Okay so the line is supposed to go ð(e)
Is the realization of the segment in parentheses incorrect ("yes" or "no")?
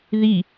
yes